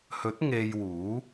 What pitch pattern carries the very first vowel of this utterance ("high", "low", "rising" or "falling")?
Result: rising